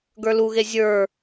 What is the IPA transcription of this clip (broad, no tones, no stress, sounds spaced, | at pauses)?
ɡ ə˞ l u ɣ e zʲ ə˞